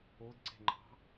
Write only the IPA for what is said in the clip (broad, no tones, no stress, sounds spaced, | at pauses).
o d ǀ e̤ ŋ͡ǃ ɑ̤